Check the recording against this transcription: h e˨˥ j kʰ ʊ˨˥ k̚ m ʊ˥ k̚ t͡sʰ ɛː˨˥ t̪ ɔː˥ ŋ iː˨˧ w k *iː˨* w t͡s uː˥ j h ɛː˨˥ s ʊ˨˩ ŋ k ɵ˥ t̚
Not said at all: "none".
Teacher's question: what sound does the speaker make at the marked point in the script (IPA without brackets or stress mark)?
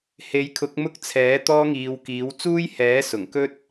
iː˨˥